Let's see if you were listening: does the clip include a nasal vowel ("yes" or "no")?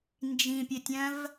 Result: yes